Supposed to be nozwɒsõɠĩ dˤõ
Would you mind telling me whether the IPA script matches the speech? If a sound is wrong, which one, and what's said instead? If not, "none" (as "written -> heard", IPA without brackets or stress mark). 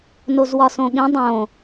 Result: none